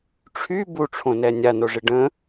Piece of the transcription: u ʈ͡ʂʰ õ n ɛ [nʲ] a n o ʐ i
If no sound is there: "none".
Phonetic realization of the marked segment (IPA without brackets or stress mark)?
nʲ